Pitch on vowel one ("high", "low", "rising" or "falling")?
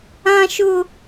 high